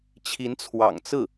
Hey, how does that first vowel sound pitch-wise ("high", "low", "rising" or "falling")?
rising